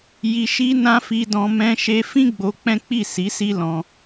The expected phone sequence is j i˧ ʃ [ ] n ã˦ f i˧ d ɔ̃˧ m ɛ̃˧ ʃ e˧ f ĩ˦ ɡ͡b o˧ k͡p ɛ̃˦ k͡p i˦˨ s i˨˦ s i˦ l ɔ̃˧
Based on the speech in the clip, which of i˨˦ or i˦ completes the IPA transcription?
i˦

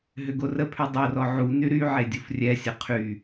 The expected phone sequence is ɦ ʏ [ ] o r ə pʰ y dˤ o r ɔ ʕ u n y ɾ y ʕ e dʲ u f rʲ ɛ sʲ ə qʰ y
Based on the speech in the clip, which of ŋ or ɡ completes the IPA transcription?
ɡ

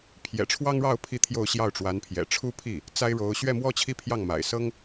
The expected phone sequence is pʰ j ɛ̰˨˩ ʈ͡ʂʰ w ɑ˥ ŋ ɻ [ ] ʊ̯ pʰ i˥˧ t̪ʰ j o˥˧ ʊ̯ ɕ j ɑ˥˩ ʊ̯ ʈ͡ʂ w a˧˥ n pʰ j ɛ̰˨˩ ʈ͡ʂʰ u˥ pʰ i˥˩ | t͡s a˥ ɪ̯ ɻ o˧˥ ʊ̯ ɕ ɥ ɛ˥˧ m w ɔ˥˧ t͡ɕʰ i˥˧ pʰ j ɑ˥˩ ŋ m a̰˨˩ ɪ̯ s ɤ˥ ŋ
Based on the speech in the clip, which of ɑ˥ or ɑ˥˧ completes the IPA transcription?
ɑ˥˧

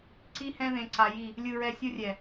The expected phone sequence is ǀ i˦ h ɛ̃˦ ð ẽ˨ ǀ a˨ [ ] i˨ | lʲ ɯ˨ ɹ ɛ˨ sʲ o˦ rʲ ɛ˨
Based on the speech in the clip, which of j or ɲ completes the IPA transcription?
j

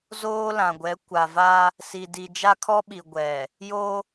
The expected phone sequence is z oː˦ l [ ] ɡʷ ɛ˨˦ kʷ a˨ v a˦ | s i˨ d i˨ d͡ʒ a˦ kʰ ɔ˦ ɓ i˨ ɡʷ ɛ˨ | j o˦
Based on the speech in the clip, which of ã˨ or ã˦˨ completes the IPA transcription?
ã˨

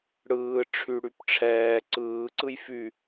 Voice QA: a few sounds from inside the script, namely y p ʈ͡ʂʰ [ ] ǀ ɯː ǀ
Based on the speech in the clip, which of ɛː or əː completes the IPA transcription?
ɛː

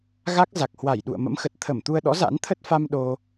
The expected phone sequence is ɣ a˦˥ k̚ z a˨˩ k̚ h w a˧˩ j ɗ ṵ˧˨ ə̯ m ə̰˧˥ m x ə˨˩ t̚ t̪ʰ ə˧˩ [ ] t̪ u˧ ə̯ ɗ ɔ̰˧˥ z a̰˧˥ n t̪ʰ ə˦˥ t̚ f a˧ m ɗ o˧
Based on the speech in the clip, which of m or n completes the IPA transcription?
m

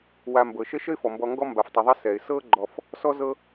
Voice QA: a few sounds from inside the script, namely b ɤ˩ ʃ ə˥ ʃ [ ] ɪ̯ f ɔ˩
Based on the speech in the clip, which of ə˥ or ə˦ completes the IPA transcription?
ə˥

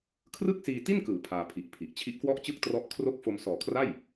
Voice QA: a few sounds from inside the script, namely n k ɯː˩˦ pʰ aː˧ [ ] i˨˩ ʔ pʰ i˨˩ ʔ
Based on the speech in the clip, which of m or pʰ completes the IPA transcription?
pʰ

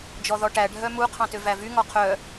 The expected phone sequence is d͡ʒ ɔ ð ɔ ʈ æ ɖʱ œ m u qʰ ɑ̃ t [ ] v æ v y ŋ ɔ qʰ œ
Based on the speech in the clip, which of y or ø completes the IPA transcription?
ø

